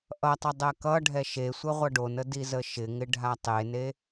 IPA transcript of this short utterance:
ʔ ʌ tˤ ʌ dˤ ɛ k ʌ ɖʱ ɛ ʃ e sʷ ə ʁʷ ʌ ɖ o n ə d i z ə ʃ ɪ ŋ ɪ ɖʱ a tˤ e n e

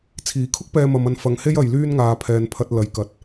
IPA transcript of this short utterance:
t͡sʰ iː˨˥ kʰ ʊ˥ k̚ p ɛː˧ m ɐ˨ m ɐ˨ n f ɐ˨˧ ŋ h e˥ j ɐ˧ j l yː˥ n ŋ aː˨ pʰ ɛː˨ n pʰ ɐ˧ t̚ l ɐ˨ j k ɐ˨˥ t̚

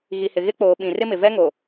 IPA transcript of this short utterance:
ɣ i˨ h ɪ˨ ɣ ɪ˦ k͡p oː˨ ɓ ĩ˨ r ɪ˦ m ɪ˨ v ɛ˦ ŋ o˨

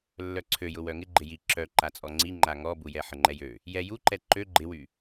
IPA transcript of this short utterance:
lː œ ǀʰ ø j ʊ w œ ŋ ɪ ɡ͡ǃ ɪ j i ǁ œ ǃ a t͡sʼ ɔ ŋ͡ǀ i ŋ͡ǃ a ŋ ɔ b u j ɛ ħ ə ŋ͡ǃ ɛ j ø | j ɛ j u ǃ ɛ ǃ ø ɡ͡ǃ ɪ w y

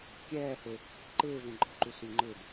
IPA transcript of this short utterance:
kʲ ɛː h e | ǃ ɪː v ẽ ɡ͡ǃ ɔ ǃ u s y ŋ͡ǃ ɪː b

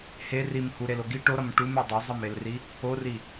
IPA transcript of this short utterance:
h e r i m h u ɾ e l o ɡ i ʈ o ɾ ʌ m ʈ u m e dˤ o zˤ ʌ m e l r i | o r i

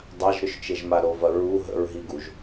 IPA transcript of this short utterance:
dˤ a ʒ ɾ ʏ ʃ t͡ʃ e ʒ m a ɾ o v ɐ ɹ u ɦ ə̰ ɹ ɦ i ɡ u ʒ

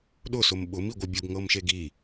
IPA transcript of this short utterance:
ɗ ʊ s ʊ m ɓ ʊ m i ɡʷ ɪ bʲ o ɡ ŋ ɤ m ʃ e ɡ i

